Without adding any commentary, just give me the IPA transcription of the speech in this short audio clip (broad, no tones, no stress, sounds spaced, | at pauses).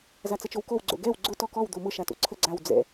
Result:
z a t͡s ə t͡ʃ o w k o w ɡ͡ǀ o̰ ɡ ɛ w ɡ͡ǀ ʊ t ɔ k ɔ w d̪ o m ʊ ʃ a t o̰ ǀʰ ə ɡ͡ǀ a w d͡z ɛ̰